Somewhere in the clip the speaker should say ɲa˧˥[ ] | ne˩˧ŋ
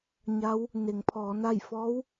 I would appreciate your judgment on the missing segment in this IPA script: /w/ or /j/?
w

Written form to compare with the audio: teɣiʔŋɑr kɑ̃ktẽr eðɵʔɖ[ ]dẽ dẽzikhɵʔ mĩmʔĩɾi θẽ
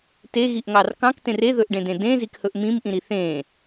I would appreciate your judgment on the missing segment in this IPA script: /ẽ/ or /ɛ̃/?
ẽ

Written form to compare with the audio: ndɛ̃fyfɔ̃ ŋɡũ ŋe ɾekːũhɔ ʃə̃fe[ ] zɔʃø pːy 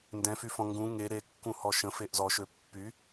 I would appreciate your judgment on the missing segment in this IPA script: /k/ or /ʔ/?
ʔ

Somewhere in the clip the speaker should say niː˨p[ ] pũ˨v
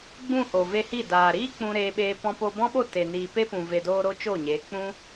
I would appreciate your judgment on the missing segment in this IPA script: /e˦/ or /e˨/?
e˦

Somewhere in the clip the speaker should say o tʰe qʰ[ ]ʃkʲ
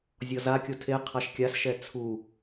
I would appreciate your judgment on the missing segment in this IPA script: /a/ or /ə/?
a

